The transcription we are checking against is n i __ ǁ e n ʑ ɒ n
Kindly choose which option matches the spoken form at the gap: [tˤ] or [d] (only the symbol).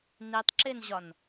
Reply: tˤ